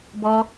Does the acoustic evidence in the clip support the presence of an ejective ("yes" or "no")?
no